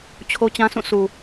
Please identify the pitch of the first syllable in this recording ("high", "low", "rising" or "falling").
high